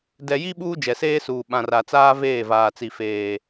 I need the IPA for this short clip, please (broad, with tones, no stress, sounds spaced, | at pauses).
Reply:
d ɛ˨ j i˦ ɓ uː˦ d͡ʒ ɛ˨ s eː˦ s uː˨ ɓ ã˨ r a˨ t͡s aː˦ v eː˦˨ v aː˨ t͡s i˨ f eː˨